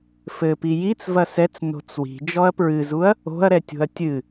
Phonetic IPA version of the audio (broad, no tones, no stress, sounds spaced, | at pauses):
f ɘ p i j i t͡s v ɐ s ɛ t͡s n o̤ t͡s w i̤ d͡ʒ ɔ ɐ̯ p ɹ ɨ z u ɐ̯ | o̤ ɐ̯ ɾ ɛ tʲ o̤ ɐ̯ tʲ ɨ